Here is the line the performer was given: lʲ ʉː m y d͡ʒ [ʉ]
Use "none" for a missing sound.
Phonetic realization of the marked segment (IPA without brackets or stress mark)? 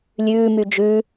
ʉ